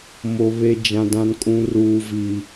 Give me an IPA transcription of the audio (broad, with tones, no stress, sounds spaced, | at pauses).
m o˦ β e˦ d͡ʒ ã˦ d ã˦ n kʼ ũ˦ r uː˦ v i˦